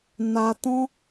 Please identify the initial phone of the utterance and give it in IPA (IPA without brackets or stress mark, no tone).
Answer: n